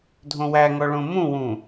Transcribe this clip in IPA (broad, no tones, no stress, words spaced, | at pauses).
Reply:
dʱõwæŋɔ ɭõmũwũ